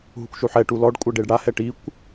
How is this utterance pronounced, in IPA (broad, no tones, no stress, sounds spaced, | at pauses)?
ɦ u kʷ ʃ u ħ ɛ ʈ u l ɔ ɖ kʷʼ ɛ ɖ e ɖ ɽ a h ɛ ʈ i kʷ